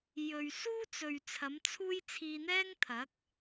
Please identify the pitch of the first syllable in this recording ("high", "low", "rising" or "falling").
low